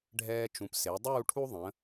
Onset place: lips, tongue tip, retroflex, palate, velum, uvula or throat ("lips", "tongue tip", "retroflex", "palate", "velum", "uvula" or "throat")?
retroflex